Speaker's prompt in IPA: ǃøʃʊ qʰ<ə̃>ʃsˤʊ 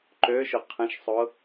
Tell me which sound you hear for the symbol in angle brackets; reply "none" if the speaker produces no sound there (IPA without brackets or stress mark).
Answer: ə̃